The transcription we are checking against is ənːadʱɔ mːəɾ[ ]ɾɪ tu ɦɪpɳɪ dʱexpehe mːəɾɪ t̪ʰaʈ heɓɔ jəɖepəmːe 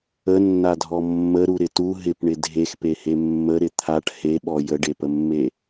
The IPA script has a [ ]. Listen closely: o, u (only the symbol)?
u